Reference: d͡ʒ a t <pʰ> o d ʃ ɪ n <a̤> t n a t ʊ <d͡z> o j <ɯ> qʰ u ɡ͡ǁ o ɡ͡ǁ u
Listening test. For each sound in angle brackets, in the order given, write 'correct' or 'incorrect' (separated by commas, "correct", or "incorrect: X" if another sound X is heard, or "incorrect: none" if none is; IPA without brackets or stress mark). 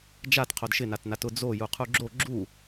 incorrect: qʰ, incorrect: a, correct, incorrect: u